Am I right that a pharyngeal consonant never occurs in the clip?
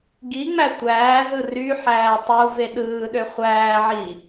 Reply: no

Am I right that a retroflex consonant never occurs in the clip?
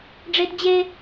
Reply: no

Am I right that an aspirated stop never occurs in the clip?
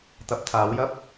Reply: no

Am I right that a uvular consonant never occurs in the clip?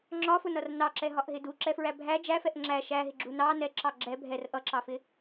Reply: yes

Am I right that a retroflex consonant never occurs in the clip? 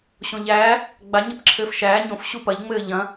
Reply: yes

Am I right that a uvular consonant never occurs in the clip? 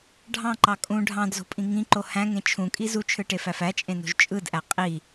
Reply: no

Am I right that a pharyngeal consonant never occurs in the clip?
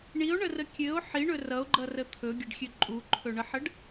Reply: no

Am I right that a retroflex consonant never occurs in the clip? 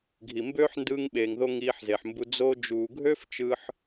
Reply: yes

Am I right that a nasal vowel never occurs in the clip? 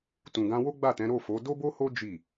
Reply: no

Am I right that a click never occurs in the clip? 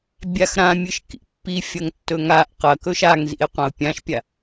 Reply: yes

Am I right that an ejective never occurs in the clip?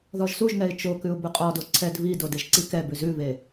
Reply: no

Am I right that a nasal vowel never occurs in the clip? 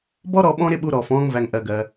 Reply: no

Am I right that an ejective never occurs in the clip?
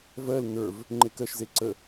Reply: yes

